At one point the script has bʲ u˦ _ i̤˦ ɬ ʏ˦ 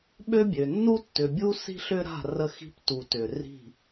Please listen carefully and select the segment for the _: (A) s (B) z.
A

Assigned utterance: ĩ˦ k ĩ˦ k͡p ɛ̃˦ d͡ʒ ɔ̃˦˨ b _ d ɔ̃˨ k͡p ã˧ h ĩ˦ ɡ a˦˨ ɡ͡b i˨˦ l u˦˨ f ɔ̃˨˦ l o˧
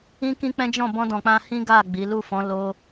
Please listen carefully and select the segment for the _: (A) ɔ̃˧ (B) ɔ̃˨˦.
A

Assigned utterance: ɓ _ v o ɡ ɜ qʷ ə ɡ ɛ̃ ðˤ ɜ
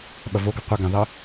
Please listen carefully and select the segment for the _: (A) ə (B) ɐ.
B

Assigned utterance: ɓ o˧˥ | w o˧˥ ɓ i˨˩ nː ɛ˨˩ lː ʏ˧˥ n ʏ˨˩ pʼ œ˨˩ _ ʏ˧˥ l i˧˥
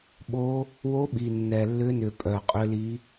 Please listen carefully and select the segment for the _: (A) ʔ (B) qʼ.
B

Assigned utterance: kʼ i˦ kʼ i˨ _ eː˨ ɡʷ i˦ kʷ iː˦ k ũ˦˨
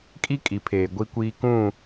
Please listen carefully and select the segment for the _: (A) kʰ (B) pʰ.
B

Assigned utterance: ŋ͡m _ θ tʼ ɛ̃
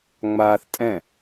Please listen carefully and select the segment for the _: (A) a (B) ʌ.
A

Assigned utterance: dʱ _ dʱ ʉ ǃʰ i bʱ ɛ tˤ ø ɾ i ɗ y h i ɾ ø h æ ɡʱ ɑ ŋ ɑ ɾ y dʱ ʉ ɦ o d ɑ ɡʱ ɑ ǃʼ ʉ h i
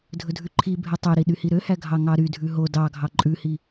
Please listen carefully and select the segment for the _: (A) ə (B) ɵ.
B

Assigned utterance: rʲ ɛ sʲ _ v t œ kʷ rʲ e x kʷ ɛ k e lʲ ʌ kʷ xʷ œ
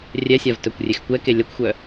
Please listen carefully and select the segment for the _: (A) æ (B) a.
B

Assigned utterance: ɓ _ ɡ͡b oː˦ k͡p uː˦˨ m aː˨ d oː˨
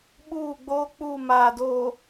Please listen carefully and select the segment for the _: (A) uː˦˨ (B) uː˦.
A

